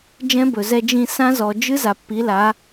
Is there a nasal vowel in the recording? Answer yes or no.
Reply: yes